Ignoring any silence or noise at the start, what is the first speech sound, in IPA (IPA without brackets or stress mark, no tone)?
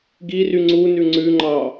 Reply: ɡ